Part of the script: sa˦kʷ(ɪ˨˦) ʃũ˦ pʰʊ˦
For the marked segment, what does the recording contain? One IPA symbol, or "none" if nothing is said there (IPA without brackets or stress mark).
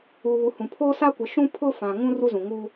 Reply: ɪ˨˦